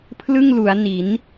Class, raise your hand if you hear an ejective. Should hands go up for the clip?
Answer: no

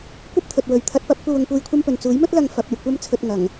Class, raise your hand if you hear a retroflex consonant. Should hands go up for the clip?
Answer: no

